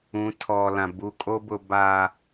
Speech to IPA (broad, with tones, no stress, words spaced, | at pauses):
ũ˨˦tʰɔ˨lã˨ bu˨kʼo˦bʊ˨ ba˨